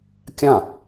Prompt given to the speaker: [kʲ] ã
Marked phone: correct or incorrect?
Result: correct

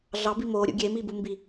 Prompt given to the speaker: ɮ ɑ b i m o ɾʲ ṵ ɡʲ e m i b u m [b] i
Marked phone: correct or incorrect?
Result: correct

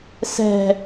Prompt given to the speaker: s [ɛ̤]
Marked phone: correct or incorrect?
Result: correct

